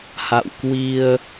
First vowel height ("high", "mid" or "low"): low